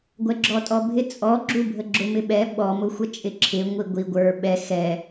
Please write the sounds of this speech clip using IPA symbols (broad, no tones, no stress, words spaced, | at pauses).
ɡʷɛɡ͡ǁɔtʼɔbʱɪ t͡sʼɔ ɡ͡ǁubʱəɡ͡ǁʊ mɪɓɛ ɓɔ mʊxʷət͡ʃʼɪ ǁʰɪ ŋʷiɡʷi ɡʷə˞ ɓɛ xɛ